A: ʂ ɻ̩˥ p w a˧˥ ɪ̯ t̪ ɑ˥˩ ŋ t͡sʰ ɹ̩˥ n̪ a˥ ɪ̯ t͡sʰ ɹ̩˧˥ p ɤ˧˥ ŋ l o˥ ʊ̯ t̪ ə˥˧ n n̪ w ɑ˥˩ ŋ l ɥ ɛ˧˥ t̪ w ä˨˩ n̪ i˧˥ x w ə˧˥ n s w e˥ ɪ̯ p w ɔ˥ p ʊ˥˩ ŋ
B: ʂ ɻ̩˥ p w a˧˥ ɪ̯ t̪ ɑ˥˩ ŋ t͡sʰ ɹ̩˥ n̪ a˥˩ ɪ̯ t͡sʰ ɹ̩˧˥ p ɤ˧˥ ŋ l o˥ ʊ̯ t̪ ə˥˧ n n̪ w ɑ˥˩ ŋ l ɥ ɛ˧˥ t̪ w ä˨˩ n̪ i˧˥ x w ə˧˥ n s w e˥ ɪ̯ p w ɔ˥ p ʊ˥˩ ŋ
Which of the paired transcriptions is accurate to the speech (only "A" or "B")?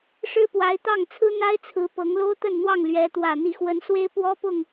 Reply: A